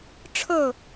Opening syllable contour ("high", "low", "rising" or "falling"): falling